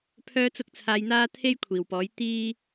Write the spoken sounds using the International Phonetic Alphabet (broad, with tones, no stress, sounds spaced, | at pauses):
pʰ œː˥ t͡s ʊ˥ k̚ t͡sʰ aː˧ j n̪ aː˥ t̪ʰ e˥ j kʷʰ iː˨˩ w p ɔː˨˥ j t̪ iː˥